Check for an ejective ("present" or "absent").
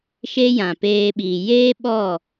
absent